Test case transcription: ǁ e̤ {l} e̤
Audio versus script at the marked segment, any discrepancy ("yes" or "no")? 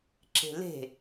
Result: no